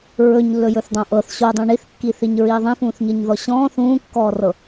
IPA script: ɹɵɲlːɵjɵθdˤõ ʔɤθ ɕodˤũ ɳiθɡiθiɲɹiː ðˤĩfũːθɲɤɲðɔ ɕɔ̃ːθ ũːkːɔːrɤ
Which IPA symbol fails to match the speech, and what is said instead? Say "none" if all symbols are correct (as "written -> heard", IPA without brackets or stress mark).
ɡ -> kː